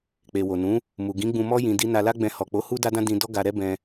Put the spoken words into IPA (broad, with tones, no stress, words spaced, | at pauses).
k͡pe˨wo˨ nũ˨˦ | mu˨ɡĩ˨˦ ɡ͡bũ˧mɔ˦ jĩ˧di˦ na˧la˦ɡ͡bɛ̃˧ hɔ˨k͡po˨˦ hu˦da˦dã˦ dĩ˧ dɔ˦ɡa˧ɾɛ˦ bɛ̃˧